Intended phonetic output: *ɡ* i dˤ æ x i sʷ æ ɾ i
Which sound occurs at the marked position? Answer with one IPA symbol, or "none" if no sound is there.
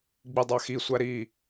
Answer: ɡ͡b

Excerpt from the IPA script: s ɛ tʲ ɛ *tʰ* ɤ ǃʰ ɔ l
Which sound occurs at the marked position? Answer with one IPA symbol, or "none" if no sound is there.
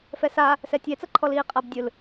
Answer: t͡s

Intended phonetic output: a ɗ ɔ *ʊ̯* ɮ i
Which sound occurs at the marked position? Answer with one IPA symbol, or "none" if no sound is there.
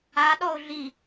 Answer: ʊ̯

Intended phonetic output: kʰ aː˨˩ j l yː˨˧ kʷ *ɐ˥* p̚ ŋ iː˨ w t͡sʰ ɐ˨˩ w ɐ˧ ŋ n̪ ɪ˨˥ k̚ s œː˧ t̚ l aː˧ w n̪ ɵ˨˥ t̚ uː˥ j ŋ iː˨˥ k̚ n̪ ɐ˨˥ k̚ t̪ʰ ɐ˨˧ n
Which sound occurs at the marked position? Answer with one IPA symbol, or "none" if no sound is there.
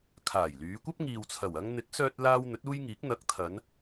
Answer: ɐ˥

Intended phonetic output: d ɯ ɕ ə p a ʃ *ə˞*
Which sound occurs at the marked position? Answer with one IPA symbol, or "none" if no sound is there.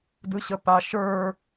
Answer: ə˞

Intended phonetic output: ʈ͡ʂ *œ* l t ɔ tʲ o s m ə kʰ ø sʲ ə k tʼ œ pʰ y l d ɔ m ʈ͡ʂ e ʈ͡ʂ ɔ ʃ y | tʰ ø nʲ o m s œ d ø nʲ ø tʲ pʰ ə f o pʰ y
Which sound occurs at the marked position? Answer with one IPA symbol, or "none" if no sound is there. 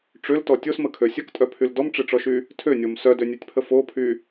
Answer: ø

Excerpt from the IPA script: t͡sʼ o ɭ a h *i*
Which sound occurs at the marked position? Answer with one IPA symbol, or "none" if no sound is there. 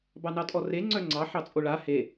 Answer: e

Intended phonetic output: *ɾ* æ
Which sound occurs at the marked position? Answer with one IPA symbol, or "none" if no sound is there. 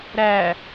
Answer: ɾ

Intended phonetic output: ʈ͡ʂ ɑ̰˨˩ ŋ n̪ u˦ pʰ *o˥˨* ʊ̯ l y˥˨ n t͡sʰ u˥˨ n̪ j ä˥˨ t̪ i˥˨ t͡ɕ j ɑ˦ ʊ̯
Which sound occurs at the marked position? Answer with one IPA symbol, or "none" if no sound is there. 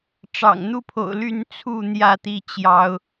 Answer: o̰˨˩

